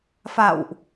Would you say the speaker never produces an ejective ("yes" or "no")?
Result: yes